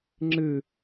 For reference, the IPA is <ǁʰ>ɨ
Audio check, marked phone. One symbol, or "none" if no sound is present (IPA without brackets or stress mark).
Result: ŋ͡ǁ